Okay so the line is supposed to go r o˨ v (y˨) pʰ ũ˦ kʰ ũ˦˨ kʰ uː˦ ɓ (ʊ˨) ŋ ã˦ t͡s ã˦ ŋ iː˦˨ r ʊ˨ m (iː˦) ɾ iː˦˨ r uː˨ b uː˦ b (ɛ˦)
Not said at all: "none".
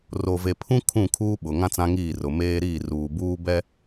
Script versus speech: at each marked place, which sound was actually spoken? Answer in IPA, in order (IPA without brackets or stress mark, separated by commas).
e˨, ʊ˨, eː˦, ɛ˦